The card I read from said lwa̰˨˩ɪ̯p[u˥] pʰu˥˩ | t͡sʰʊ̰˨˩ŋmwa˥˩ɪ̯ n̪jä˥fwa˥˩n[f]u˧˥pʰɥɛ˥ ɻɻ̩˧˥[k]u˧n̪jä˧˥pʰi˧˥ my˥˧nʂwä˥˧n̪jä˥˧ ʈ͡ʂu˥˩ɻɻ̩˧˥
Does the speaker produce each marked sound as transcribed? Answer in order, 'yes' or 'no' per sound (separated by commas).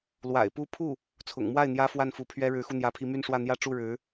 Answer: yes, yes, no